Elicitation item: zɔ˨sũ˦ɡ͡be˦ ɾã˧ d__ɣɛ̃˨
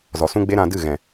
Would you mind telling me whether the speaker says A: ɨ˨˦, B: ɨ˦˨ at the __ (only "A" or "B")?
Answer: B